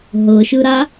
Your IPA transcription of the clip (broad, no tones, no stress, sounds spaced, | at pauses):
ɦ ɤ ʃ ɯ ɾ a